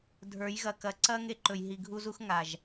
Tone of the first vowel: rising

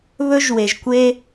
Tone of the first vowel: high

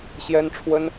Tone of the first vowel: high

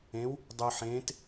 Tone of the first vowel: rising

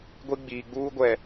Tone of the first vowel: high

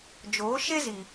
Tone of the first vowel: rising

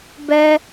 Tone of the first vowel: high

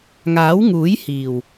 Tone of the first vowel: rising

